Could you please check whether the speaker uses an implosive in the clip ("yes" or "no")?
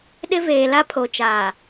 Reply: yes